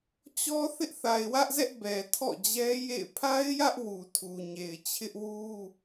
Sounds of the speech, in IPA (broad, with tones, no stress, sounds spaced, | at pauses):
t͡ɕ ɔ˦ θ ɪ˦ ʔ θ a˨ ɪ̯ w ä˦ ʔ z ɛ˦ ʔ b ɛ˨ tʰ ɔ̰˦˨ d͡ʑ ɛ˦ j ḛ˦˨ ɪ̯ pʰ a˦ ɪ̯ j ä˦ ʔ w u˨ tʰ u˨ ɲ e˨ ɪ̯ t͡ɕʰ ɪ˦ ʔ w u˦